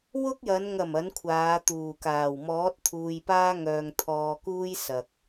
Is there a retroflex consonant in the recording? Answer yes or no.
no